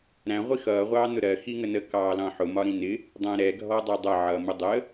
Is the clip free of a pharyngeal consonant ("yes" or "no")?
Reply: no